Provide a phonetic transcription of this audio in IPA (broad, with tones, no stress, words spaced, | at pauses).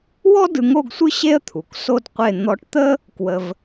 wɔ˥ dɯ˧ŋo˥˧ɡsʷɯ˥ ɕe˥ə̯t̪ʰu˩˧k so˧d qʷe˥˧ n̪ɔ˧ʈt̪ə˥ | kwə˧v